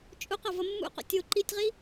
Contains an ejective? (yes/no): yes